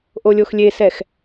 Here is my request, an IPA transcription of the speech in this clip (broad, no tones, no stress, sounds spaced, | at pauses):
ʔ o lʲ o x lʲ e s ɛ x